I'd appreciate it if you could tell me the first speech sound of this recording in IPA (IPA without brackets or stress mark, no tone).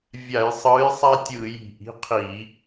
vʲ